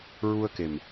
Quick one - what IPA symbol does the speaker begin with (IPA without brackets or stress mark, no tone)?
ɹ